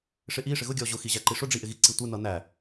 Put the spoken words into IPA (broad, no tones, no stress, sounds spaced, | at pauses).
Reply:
ʂ ɪ ʔ i ʂ ɪ ɣ ʊ ɡʲ ɔ ʑ ʊ x i ʑ æ ǃ i ʂ ʊ ɖ͡ʐ i ʔ ɪ ɣ i ǀ i tʷ ɪ n ʌ n æ